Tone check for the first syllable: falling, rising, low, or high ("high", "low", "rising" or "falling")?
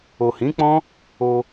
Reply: low